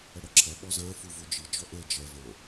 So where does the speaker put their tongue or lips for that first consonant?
retroflex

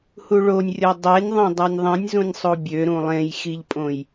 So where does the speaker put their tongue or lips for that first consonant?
throat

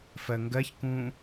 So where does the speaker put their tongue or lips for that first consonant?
lips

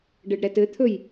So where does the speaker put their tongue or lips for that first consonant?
retroflex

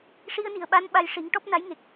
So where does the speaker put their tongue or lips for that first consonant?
retroflex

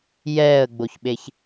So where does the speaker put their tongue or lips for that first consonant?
palate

